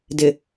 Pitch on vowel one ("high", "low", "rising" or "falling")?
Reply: low